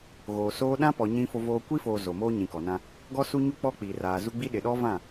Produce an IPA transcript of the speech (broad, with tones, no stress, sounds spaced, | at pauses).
ɣ oː˨ s oː˦ ɗ ã˦ p ɔ˨ ɲ ĩ˦ f o˦ v oː˦ kʷ i˦ f oː˨ z o˨ m oː˦ ɲ ĩ˨ k ɔ˨ n ã˦ | ɡ ɔ˦ s u˦ ɲ u˦ k͡p ɔ˦ k͡p i˨ r aː˨ z u˦ ɡ͡b i˦ ɗ ɪ˨ ɗ ɔ˦ v ã˦˨